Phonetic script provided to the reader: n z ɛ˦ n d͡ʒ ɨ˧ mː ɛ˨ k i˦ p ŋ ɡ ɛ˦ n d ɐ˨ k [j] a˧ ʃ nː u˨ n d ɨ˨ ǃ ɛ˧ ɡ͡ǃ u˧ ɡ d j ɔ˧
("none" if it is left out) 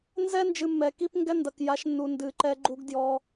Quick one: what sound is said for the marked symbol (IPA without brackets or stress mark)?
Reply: j